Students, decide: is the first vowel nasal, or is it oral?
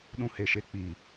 nasal